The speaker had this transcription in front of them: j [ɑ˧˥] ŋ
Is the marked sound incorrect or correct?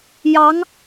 correct